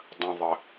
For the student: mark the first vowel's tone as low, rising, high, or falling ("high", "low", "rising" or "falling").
low